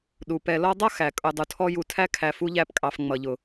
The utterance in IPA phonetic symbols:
ɗ u˩ p ɛ˨ l ɔ˦ dˤ ʌ˥ x æ˩ kʼ ʊ˨ dˤ u˨ tʰ ɔ˦ j u˨ tʰ æ˦ kʰ æ˨ f u˥ ʎ æ˦ p kʼ ɑ˨ f ŋ͡m ʌ˩ ʎ ʊ˩

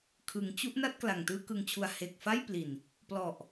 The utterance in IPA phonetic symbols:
kʰ ɯ˩˦ ŋ t͡ɕ u˦˥ ʔ n a˥˩ t̚ k l a˨˩ ŋ t ɯː˥˩ k ɯ˧ ŋ t͡ɕʰ u˧ a̯ h e˨˩ k̚ f a˥˩ j p l i˨˩ n | p l ɔ˨˩ ʔ

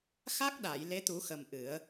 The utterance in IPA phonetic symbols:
x a˦˥ k̚ ɗ a˨˩˨ j l e˧˥ t̪ u˨˩˦ x ə˨˩ m ʔ ɨ˨˩˦ ə̯

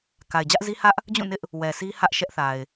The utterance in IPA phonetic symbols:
k a˨ ɪ̯ d͡ʑ ä˦ ʔ z i˦ h ä˦ ʔ | d͡ʑ ũ˦˨ n ɪ˦ ʔ | w ɛ˨ s i˦ h ä˦ ʔ ʃ ɛ˦ ʔ θ a˨ ɪ̯

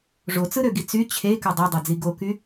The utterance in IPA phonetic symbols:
ʐ o t͡s ɯ ɾ ø ɡ i t͡s y t͡ɕʰ e k ø dˤ ø dˤ e d͡z i ɡ o k y

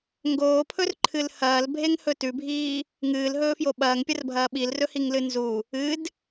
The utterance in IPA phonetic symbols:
ŋ ɡ oː pʰ ɵ r ǃʰ ɨ l h ɐː l bʱ e ŋ h ɵ t ʉ bʱ iː | ŋ ɨː l ɦ ɵː f j o ɓ ɐː ŋ pʲ ɐ r bʱ ɐː ɓ i l r ɵ h i ŋ l ɨ n z u | ɨ d

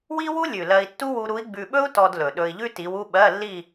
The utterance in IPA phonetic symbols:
w i˥ w u˥ lʲ ʉ˨˩ l ɜ˧ i̯ tː u˥ w u˧ ɾ u˧˥ i̯ ɡ͡b ʉ˧ ɓ ɵ˥ u̯ t ɔ˧ d l ɵ˨˩ ɗ ɵ˧ i̯ ʎ ʉ˥ t i˧˥ w u˥ ɓ ɜ˧˥˧ lː i˥˧

